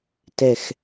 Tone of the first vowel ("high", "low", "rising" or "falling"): low